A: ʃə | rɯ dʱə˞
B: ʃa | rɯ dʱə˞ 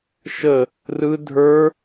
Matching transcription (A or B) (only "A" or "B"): A